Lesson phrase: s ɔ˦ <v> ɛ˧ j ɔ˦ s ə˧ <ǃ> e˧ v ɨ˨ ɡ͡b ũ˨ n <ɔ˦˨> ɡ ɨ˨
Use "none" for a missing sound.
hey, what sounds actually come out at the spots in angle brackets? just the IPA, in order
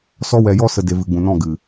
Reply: w, d, ɔ̃˦˨

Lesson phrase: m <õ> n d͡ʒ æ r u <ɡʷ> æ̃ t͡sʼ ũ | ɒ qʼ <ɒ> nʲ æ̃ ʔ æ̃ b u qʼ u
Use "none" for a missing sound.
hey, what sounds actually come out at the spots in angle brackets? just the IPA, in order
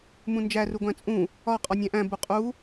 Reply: ũ, ɡʷ, ɒ

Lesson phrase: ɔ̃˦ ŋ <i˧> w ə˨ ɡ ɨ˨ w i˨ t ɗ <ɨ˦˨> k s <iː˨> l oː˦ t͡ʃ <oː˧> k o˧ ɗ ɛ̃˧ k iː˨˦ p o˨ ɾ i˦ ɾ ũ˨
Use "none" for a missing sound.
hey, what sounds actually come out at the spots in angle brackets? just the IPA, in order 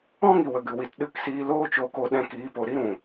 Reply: i˨, ɨ˦˨, iː˧, oː˧

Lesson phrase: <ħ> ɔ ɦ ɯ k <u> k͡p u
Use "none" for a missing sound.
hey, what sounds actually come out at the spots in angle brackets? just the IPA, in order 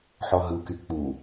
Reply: ħ, y

